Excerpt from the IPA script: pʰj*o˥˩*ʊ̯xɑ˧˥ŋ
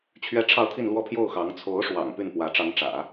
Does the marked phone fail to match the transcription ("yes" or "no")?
no